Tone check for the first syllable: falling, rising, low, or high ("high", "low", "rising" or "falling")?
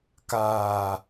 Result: low